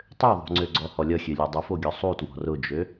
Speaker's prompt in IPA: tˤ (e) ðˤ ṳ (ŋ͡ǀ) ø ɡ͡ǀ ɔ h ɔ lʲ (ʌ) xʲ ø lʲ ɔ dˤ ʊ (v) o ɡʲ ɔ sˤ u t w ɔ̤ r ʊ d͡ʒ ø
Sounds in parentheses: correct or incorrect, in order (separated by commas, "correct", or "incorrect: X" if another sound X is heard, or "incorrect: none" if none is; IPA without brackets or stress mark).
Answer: incorrect: ø, correct, correct, incorrect: f